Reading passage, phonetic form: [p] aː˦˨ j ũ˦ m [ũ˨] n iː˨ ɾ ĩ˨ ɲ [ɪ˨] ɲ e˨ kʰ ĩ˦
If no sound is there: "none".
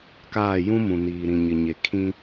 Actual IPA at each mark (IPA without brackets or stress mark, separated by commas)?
k, ũ˨, ɪ˨